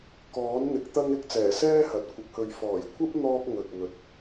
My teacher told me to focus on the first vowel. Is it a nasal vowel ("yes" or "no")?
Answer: no